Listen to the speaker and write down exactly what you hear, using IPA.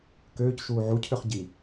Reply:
køːcʃuː ʕucʰøχ ɟi

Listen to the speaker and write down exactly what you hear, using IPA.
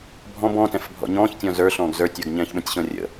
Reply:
bʱɔ̃b ɔ̃tɛ̃f bʱɔ̰ɲɔ̃ːçtʲɔ̃ zə˞ ɬɔ̃ːɡzə˞tʲə˞ɡ ɲɛ̃ːçɓə̃tʲɕɔ̃ rʲə̰

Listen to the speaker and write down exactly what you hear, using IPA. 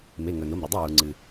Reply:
me˩˧˩ŋɵ˩no˩˧˩m ɾɵ˩dˤo˥˩ wu˩ŋ͡ǀɨ˩

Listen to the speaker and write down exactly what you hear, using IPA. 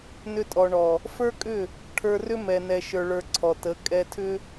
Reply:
nʏ˧tʼɔ˨ɳɔ˨ | fə˞˦kʼʏ˦˨ | ʈʰə˞˧rʏ˦mɛ˨nɛ˨ ʃə˞˧ɭə˞˧ǀʰɔ˨ tə˨˦ kʼɛ˧tʰʏ˦

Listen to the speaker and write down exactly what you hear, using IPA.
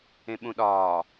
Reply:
ẽɓũɗɒː

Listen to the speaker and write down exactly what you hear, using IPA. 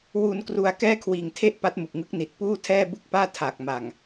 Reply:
wu˧nkru˧a̯ kɛː˥˩kʰwiː˨˩ŋtʰe˥˩ʔ pa˦˥t̚mu˨˩k̚ŋɯ˦˥k̚ ni˨˩t̚puː˥˩ tʰɛː˥˩ bu˥˩k̚paː˥˩ tʰa˨˩k̚ ma˨˩ŋ

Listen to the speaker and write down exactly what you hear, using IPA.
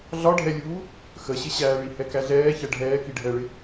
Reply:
ɮɒɖʱɛlʲuː | xəɕɪɕæːɭi hɛkæɮɛː çɛɖʱɛː kiɖʱɛɭɪ

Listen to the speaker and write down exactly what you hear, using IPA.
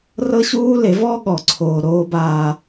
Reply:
rɤ˦ ɕuː˦le˨˦vɔː˦ ɠɔ˨ǀʰoː˨ ɾoː˦baː˦

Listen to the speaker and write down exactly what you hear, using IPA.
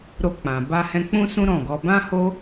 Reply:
ɾo˧k͡pã˨ ba˧hɛ̃˧k͡pũ˦sũ˦ ɾɔ̃˦˨ɡɔ˧ bã˦ho˦

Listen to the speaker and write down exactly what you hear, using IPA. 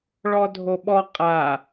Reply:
ɭɔdʱoɓɔ qʼa

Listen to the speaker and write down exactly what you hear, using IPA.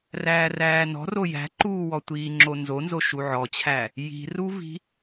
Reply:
ræːræːnɔ̤ro jæ̤ǃuːwɔ tʷiːŋ͡ǁonzonzo ʃuʕɔt͡ɕʰæ | ji̤ruvi̤

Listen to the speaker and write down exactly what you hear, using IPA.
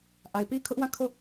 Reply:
ʔa˨ɪ̯pi˦kʰʊ˦ʔwã˦˨ kʰo˦˨

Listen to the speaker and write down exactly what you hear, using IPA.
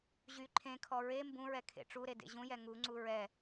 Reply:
ʑy ǃʰẽkʰɔ ɹe mbũɹɛkʰḛ ʈ͡ʂuɾedḛ ʑũjɛ ŋuŋ͡ǀu ɹɛ

